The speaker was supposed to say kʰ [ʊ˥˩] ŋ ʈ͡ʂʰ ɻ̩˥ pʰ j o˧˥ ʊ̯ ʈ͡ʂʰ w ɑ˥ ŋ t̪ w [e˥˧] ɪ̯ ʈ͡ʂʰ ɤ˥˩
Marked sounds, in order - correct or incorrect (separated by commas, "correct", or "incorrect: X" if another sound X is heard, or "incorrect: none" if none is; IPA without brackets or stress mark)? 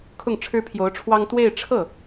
correct, correct